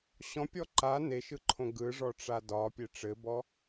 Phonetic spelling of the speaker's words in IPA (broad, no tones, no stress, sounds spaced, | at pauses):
ɕ ɔ̃ pʲ ɔ ǃ a n e ʃ ɯ ǃʰ õ ɡ ɯ ʐ ɔ ʈ͡ʂ a d ɒ pʲ e ʈ͡ʂ ɘ b ɔ